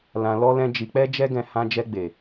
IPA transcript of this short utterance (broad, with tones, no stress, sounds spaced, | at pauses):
l ã˧ l ɔ˦ l ɛ̃˦ d͡ʒ i˧ k͡p ɛ˦ d͡ʒ ɛ˦ ɡ ɛ̃˧ h ã˧ d͡ʒ ɛ˧ ɡ͡b e˨